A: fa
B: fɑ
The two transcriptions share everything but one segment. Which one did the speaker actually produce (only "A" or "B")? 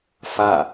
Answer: A